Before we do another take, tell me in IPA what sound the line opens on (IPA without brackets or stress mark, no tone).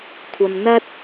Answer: kʷʰ